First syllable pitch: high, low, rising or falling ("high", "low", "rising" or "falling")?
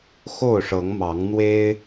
falling